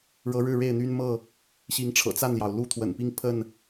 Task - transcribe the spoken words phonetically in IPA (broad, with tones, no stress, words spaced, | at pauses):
ɻɤ˨˦ɻɻ̩˥˨ ɻe˥˨ɪ̯n̪y˦nmɤ˥˨ | ɕi˨˦ŋʈ͡ʂʰɤ̰˨˩ t͡sa˥˨nljɑ˩ʊ̯ lu˦t̪ʰwə̰˨˩npi˦ŋ pʰə˥˨n